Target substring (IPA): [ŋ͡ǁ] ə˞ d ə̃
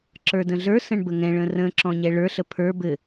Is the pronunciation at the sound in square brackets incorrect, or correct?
incorrect